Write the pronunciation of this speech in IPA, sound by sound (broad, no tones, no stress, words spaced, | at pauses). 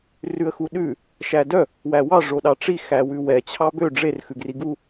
rʉə̯xuɗʉ | ʃædœ | wæwɑ ʐoɗɑʈ͡ʂi xæwʉwɛ t͡ɕʰɑbø ɖ͡ʐer xʉɡriɡu